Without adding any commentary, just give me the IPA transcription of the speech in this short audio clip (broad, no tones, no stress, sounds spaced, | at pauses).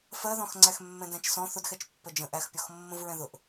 f ɜ ð ɔ̃ x ŋ͡ǀ æ x mː ɛ̃ d æ̃ t͡ʃ s ɔ̃ θ ʊ d x ɛ t͡ʃ pː ə d͡ʒ ə̃ ʔ æ x pʲ ɔ x mː ə̃ v ɹ ɛ̃ ð ʊ ʔ